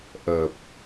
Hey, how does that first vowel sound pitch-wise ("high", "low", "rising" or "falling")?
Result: low